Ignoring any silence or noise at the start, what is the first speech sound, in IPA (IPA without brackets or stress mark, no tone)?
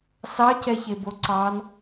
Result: s